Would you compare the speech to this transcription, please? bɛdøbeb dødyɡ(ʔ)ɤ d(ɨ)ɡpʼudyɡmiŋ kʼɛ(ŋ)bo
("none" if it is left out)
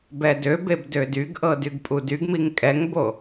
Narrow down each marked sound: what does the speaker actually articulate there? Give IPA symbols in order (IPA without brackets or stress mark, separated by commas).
ʔ, y, ŋ